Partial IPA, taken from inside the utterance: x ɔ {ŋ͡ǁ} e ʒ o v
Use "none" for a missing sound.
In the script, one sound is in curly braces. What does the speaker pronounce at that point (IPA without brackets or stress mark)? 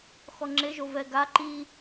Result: ŋ͡ǁ